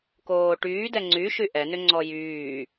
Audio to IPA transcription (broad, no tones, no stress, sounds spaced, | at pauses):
k oː ʈ yː d ɛ ŋ͡ǀ y ʃ y ʔ ɛ n ʏ ŋ͡ǀ ɔ j yː